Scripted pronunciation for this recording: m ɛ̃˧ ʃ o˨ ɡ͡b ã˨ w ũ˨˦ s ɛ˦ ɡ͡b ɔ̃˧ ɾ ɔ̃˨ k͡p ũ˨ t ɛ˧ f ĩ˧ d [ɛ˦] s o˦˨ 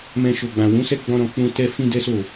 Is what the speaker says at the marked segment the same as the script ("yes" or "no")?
yes